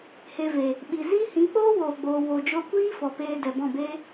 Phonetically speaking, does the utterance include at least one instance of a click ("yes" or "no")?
no